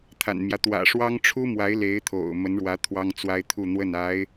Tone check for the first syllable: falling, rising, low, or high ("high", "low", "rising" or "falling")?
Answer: low